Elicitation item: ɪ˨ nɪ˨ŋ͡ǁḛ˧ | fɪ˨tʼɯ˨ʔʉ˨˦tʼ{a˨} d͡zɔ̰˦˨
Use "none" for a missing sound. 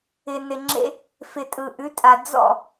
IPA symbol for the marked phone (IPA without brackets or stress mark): a˨